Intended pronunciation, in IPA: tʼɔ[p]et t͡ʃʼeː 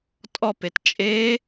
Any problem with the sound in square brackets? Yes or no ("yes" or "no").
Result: no